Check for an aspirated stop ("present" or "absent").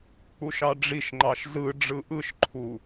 present